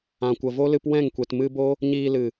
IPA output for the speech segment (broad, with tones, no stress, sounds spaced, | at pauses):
ã˨ kʷ ə˨ v o˦ l ɨ˧ p w ɛ̃˦˨ ŋ kʷ e˨ t m ɨ˧ b o˦ | ɲ iː˧ l ɨ˨